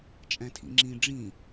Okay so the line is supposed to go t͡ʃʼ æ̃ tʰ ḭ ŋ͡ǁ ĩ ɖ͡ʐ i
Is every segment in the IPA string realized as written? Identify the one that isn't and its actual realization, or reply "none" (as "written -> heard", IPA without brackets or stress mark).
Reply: i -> ĩ